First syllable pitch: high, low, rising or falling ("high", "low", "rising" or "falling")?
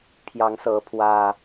rising